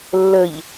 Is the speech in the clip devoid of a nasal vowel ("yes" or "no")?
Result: yes